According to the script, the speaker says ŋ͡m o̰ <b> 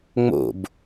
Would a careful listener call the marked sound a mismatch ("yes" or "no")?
no